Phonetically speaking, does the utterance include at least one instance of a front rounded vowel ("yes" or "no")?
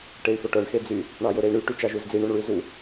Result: yes